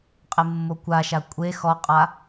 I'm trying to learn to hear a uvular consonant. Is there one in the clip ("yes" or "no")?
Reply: yes